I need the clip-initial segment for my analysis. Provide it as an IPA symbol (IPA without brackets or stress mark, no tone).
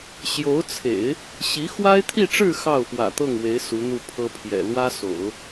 ɕ